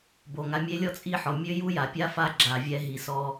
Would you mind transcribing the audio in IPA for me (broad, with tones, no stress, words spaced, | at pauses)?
bo˨ŋa˧mʲe˦ lʲɔ˦t͡sʼi˦˨ħɔ˨ mʲø˦ju˦ja˨pʲa˦ fa˦ ɡ͡ǁa˨vʲɛ˧ ɦi˨sɔ˧